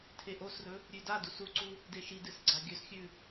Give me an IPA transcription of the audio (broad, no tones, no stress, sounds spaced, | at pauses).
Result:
tʰ e ʔ o s r ɵ | ɾʲ ʉ d a d u s u ǀ u | d e ʃ i d ɨ s ɡ͡ǀ a ɡʲ ɵ s xʲ ʉ